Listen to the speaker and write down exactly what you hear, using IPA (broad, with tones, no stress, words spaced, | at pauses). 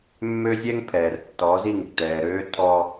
mːø˦zʲɛ˦ŋpʰɛː˨r tːɔː˨˦zi˦˨ŋtːɛː˨ ɾøː˦ tʰɔ˦